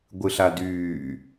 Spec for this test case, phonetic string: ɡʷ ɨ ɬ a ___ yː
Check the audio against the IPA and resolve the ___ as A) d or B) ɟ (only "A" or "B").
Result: A